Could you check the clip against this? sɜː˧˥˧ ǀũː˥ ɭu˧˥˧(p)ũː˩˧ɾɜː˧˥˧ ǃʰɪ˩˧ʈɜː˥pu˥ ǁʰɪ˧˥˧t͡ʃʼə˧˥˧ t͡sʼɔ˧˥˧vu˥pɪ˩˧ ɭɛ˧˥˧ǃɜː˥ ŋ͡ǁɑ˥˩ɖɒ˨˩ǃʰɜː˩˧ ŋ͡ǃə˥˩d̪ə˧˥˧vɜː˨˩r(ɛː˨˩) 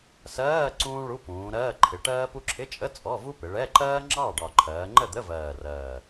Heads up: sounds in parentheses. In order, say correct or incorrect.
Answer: correct, incorrect

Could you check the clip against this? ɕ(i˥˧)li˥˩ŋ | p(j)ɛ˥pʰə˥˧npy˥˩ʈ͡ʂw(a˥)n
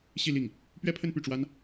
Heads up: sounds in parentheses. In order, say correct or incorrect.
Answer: correct, incorrect, correct

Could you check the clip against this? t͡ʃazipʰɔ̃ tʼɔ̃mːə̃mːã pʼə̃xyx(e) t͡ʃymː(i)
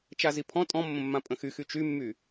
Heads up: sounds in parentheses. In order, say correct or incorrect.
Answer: incorrect, incorrect

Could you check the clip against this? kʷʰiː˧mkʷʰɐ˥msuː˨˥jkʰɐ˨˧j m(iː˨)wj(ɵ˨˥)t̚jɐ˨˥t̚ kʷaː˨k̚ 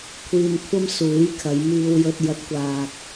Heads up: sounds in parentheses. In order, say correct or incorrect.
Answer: incorrect, incorrect

